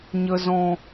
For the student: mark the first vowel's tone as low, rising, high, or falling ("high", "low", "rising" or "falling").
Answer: low